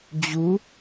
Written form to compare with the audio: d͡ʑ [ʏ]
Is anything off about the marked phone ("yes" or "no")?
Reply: yes